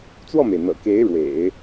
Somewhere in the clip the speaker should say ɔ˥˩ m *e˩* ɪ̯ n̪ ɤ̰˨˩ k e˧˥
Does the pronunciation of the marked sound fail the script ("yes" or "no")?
no